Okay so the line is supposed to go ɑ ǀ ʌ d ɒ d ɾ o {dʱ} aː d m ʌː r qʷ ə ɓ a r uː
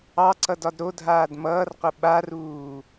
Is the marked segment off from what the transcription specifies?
no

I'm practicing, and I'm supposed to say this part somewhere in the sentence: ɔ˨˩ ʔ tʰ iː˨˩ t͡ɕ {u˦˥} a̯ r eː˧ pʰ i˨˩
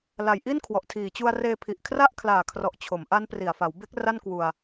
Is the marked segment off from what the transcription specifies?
yes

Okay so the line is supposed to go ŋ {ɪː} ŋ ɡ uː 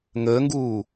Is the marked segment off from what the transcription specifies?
yes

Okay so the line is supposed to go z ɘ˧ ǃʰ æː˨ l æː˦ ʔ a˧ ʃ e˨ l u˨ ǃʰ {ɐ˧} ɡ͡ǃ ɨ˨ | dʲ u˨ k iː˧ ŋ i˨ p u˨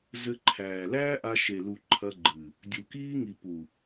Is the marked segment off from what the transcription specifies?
no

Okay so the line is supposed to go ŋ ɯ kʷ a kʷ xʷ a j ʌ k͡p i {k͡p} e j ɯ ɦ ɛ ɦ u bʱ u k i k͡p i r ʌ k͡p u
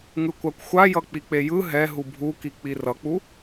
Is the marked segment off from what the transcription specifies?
no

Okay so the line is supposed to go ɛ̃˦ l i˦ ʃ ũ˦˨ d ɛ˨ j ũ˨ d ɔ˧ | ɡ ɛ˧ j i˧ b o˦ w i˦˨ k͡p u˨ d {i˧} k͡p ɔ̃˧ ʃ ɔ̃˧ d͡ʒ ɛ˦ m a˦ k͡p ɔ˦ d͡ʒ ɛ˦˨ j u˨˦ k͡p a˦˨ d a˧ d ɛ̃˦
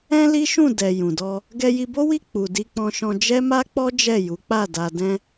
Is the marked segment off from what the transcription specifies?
no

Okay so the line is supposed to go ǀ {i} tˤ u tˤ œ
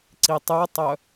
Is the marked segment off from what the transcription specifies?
no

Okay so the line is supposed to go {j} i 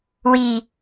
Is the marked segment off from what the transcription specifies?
yes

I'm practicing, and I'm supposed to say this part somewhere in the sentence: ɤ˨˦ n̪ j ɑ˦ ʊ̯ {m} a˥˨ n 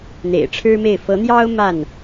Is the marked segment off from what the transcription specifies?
no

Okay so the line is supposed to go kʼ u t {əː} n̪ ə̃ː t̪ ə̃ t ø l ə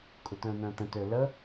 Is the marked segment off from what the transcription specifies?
yes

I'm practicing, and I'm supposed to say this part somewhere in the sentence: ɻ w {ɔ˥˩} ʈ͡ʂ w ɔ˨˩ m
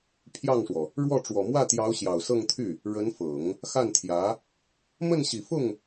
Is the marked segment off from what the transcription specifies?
no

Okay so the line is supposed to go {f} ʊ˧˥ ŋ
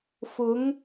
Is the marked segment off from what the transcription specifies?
no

